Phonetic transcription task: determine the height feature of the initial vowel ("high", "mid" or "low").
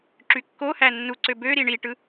high